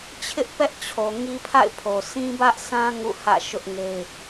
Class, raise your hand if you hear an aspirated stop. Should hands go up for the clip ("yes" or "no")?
yes